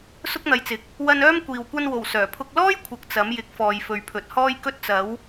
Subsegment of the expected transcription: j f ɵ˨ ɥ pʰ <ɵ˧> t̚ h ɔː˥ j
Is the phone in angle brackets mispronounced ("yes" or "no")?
yes